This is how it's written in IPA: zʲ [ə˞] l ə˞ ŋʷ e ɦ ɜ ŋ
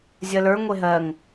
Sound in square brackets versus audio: incorrect: ɜ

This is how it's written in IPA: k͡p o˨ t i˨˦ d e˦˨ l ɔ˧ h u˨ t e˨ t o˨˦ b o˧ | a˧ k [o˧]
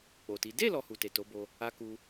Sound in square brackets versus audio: incorrect: u˧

